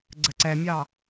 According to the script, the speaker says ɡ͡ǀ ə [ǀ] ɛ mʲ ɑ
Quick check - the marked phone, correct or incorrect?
correct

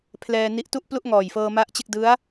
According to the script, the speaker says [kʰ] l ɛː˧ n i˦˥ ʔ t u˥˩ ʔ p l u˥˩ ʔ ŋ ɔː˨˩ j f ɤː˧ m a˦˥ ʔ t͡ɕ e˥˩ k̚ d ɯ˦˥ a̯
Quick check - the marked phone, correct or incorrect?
incorrect: pʰ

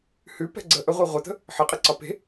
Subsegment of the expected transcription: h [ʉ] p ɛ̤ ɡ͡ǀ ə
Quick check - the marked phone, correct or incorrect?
correct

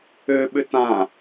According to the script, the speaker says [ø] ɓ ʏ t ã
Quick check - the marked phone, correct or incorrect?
correct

